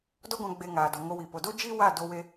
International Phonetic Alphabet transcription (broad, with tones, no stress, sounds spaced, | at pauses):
d ɔ˦ ɡʷ ã˧ ɡ͡b e˧ ŋ aː˨ d ɔ˨ ŋ o˧ w i˨ p o˨ d o˦ d͡ʒ i˦ w a˦˨ d o˧ w e˧